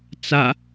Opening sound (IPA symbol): t͡s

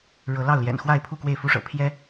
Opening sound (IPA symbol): ɻ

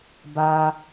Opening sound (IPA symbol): b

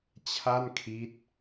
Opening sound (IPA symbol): t͡ɕʰ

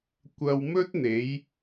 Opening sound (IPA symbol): kʷ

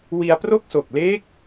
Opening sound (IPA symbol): w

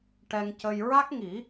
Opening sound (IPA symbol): ʈ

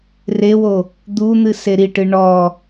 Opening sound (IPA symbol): r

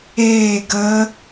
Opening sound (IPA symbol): eː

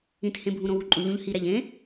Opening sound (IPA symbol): ĩ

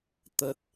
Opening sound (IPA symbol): t̪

